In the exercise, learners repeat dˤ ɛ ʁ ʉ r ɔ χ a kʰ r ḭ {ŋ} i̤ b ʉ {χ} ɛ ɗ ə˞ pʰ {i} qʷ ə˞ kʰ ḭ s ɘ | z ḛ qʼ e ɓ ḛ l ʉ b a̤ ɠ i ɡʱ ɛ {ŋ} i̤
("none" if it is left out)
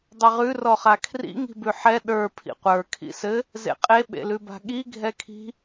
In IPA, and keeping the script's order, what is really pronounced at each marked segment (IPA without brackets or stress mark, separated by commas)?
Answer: ŋ, ħ, ḭ, kʰ